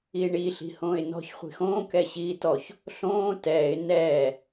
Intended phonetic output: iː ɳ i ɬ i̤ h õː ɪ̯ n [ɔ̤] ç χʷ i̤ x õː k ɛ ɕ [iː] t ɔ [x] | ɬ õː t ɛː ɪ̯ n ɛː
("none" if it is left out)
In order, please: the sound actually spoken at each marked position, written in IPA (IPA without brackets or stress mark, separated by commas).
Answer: ɔ̤, iː, ç